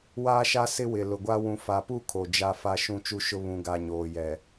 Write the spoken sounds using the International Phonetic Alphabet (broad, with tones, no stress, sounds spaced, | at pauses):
w aː˦ ʃ a˦ s ɪ˦ w ɪ˨ l ʊ˨ ɡʷ a˦ w ũ˨ f a˨ p u˦˨ kʰ o˨ d͡ʒ a˦ f a˦ ʃ ũ˦˨ t͡ʃ u˦ ʃ ʊ˦ β ũ˨ ɡ a˨ ɲ oː˨ j ɛ˨